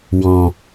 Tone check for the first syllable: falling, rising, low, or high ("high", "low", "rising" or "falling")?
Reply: low